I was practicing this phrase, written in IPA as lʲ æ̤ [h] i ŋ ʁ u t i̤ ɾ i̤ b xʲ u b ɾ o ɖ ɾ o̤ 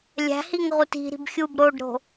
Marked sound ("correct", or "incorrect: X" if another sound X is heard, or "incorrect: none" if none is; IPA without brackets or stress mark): correct